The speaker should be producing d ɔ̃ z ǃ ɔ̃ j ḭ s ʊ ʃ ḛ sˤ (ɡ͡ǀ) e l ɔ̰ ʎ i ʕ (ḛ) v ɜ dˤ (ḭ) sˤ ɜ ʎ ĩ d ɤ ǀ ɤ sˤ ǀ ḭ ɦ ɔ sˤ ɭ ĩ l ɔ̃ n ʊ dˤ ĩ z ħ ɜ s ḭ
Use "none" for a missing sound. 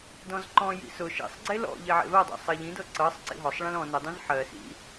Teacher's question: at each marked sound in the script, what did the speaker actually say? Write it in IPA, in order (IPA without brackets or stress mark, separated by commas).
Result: ɡ͡ǀ, ḛ, ḛ